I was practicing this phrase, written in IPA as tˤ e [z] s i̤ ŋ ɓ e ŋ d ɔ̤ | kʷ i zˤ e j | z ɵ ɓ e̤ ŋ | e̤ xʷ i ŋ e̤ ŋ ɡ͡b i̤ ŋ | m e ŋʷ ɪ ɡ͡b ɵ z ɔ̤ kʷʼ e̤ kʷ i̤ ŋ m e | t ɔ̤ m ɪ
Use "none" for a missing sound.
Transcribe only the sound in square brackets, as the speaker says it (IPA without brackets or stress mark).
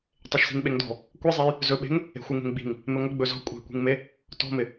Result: ʃ